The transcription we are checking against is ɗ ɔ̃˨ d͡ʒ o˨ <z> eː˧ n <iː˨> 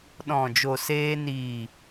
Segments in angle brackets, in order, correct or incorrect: incorrect, correct

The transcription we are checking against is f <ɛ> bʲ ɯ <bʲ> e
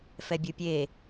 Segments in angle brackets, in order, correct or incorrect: correct, incorrect

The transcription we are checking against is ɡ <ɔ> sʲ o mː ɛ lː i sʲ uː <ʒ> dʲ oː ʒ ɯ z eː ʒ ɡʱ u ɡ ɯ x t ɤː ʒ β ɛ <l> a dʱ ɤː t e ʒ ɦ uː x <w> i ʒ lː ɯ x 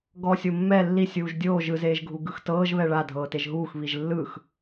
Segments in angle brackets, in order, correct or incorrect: correct, correct, incorrect, incorrect

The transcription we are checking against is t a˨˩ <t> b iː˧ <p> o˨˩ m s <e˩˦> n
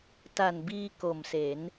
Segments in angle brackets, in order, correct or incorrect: incorrect, incorrect, correct

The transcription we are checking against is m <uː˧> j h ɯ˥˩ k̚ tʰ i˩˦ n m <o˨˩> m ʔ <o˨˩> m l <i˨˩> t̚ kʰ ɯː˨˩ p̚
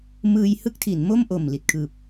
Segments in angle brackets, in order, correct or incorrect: incorrect, incorrect, correct, correct

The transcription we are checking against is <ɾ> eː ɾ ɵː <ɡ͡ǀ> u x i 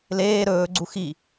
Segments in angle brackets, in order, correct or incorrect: incorrect, correct

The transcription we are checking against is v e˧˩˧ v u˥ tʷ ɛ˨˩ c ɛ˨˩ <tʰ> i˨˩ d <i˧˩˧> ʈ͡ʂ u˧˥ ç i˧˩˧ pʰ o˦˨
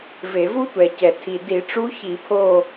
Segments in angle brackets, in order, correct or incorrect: correct, correct

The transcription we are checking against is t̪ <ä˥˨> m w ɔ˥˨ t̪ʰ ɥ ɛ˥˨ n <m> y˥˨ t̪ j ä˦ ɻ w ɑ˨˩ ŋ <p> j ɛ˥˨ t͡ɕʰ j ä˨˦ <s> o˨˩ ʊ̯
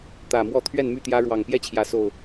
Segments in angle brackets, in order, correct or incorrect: incorrect, correct, correct, correct

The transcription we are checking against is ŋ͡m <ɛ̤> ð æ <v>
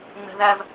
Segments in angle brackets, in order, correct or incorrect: correct, correct

